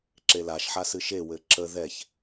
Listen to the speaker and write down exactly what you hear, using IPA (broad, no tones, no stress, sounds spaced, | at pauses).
ǁ e l a ʃ ħ a s ɨ ʃ e w ɘ ǁ ə ð ɛ ç